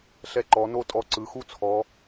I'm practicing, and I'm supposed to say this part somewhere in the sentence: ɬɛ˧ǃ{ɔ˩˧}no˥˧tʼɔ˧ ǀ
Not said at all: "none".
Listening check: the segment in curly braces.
ɔ˩˧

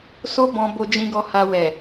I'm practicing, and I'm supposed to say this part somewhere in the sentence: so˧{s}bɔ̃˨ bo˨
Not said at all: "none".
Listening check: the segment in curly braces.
none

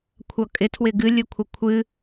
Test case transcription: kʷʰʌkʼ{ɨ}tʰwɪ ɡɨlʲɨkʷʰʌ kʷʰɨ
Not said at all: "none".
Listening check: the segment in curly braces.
ɪ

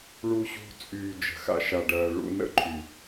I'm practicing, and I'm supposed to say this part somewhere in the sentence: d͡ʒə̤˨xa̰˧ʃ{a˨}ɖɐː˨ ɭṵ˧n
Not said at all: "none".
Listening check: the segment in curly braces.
a˨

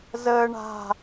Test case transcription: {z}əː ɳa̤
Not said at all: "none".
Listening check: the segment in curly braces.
z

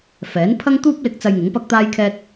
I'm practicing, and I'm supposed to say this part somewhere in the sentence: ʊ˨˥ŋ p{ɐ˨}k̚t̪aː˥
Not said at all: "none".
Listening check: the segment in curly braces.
ɐ˥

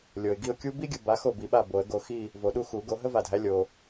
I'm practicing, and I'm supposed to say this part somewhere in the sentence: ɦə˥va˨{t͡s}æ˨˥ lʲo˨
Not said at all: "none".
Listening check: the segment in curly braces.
dʱ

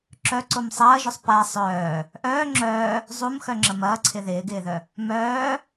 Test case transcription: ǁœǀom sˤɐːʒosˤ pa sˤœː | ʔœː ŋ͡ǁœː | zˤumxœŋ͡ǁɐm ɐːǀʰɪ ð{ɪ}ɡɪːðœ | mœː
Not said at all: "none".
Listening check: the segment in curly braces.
ɪː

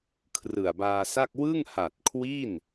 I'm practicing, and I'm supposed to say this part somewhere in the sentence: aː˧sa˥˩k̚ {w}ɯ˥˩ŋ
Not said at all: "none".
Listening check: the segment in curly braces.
w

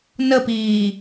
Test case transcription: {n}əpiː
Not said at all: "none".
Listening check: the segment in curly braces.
n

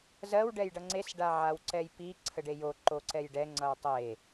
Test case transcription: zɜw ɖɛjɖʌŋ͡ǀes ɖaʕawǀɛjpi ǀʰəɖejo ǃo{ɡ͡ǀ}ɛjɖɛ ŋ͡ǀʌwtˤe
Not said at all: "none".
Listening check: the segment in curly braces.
ǀ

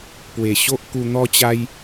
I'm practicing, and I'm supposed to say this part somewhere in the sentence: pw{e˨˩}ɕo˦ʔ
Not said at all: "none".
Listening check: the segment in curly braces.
e˨˩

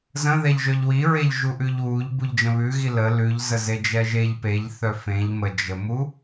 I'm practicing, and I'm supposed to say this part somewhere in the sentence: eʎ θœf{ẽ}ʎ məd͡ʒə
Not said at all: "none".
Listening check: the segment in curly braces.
ẽ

